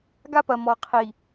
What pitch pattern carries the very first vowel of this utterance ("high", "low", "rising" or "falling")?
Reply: high